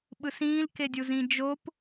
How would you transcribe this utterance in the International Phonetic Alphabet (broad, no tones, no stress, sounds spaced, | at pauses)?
ɓ ɯ s ĩː l k e dʲ u z ĩ d͡ʒ o p